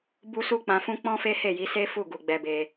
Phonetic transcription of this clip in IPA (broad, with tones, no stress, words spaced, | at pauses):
bu˧ su˧k͡pã˨fũ˧ k͡pɔ̃˦fe˦he˦˨ji˨˦ se˦fu˦˨ ɡu˨ɡ͡bɛ˧be˧